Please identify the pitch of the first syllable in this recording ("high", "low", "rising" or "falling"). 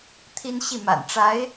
high